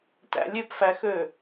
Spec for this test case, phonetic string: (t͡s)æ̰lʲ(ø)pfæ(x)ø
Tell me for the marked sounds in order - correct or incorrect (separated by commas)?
incorrect, correct, correct